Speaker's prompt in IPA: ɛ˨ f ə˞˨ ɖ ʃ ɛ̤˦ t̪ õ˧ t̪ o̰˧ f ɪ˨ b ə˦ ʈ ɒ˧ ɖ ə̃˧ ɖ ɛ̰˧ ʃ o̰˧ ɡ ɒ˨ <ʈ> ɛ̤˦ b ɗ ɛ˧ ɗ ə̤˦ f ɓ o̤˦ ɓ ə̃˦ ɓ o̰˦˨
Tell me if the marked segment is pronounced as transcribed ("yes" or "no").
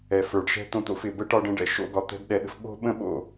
no